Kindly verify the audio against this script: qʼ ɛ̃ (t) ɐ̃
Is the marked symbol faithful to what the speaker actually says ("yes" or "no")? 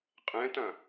yes